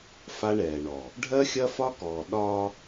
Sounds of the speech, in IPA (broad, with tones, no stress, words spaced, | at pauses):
fa˦ɳɛː˨ɳɔ˨ | ɖʱɜ˦xʲɐ˦fɒ˦kɔː˨ ɗɒ˦